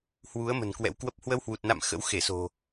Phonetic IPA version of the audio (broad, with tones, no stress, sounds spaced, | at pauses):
h w u˨˦ ə̯ m ə̤˨˩ n k w ɛ̰˧˥ w k w ə˦˥ p̚ h w ə˧ w h w u˨˩ t̚ n a̰˧˨ m x ə̰˧˥ w x e˧˩ s o̤˨˩